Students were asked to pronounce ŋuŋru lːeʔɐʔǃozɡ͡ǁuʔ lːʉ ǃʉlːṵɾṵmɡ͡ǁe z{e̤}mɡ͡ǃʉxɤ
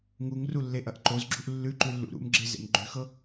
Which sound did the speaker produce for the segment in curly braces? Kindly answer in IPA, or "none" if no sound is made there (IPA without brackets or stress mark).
ḛ